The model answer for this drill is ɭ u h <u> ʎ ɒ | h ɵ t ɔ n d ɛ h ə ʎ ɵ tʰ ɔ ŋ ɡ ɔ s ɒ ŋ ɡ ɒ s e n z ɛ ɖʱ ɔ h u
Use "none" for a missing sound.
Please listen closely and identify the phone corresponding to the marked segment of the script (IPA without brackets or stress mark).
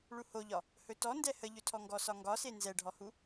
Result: o